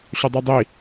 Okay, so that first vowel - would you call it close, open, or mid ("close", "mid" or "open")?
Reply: mid